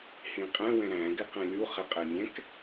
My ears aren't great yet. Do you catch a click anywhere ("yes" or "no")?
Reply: no